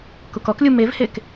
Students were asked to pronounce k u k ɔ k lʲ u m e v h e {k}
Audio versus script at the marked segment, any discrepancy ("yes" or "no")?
no